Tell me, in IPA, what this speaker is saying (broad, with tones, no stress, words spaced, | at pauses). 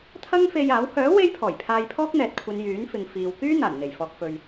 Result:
t̪ʰɐ˥ŋfe˧jaː˨˥w hœː˨˥ we˥jpʰɔː˨˩jpʰaː˧j pʰɔː˥k̚n̪ɛː˨t̚kʷʰɐ˨˧n jyː˨˥nfɪ˨ŋ fiː˨w kyː˥ n̪aː˨˩nn̪e˨˩jfɔː˨k̚fɵ˨ɥ